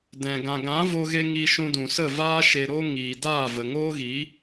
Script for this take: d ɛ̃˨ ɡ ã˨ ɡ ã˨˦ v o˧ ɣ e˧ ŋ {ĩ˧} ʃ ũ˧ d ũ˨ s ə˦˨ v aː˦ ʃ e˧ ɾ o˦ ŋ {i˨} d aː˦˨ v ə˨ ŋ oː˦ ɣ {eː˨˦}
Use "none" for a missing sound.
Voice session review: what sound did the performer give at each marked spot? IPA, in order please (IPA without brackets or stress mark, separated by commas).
i˧, iː˨, iː˨˦